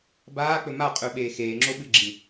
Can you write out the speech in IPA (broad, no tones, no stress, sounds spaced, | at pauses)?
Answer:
b aː k͡p ɵ m a qʼ ʉ ɓ eː x eː ŋ͡ǁ o ɓ ɨ ɡ͡ǁ ĩ